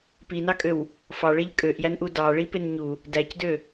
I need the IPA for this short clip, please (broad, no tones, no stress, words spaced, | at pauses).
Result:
pinɑkʼøw | fɑɭeʎ kʼøʔjænʔu dɑɭipen ɲu | dæcdø